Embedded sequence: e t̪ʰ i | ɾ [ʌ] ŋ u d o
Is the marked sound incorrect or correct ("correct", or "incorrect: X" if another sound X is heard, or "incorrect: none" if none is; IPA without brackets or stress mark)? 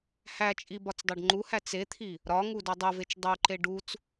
incorrect: ɒ